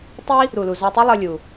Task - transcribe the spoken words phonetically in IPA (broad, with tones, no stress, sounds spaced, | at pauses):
tˤ i˥ | ɾ u˩ l u˩ z a˧ tˤ i˥ lˠ ʌ˧ lʲ u˩